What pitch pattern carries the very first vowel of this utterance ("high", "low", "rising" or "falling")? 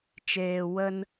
low